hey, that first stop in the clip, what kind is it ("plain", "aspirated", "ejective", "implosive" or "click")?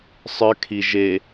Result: aspirated